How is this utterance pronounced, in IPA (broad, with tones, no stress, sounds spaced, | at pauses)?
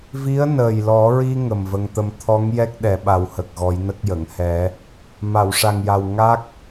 v i˧˥ ə̯ n əː˨˩ j l ɔ˨˩˦ ɹ i˧ ŋ ə˨˩ m v ə˧ ŋ t̪ ə˧ m t̪ʰ ɔ˧˥ ŋ j ɛ˦˥ k̚ ɗ ɛ˨˩˦ ɓ a˨˩˦ w h ə˨˩ k̚ ɣ ɔ˨˩˦ j n ə˦˥ k̚ j ə˨˩˨ ŋ h ɛ˨˩˦ | m a˨˩˨ w ʂ a˨˩ ŋ j a˨˩ w ŋ a˦˥ k̚